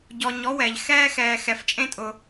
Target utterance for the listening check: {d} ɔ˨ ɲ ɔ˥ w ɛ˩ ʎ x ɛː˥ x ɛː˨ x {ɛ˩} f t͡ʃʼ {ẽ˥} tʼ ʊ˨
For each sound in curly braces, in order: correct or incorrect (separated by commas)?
incorrect, incorrect, correct